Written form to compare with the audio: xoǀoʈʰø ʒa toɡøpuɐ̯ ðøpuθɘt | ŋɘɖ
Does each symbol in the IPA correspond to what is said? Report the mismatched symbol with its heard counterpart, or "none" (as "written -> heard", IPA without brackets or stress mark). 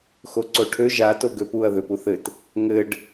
none